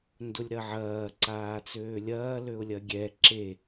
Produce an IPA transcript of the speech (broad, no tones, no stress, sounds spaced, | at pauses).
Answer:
n d ʊ lʲ ɾ ɐ ʕ ɐː ǀ aː t͡s øː lʲ ɐː l ø ʊ̯ lʲ ɐ ɡʲ ɛ ǁ e